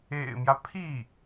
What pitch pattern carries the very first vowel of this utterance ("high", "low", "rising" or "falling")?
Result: low